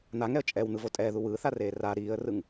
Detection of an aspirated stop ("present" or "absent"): absent